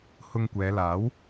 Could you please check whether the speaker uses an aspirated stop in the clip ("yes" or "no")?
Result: no